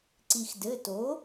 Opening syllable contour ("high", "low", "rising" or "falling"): low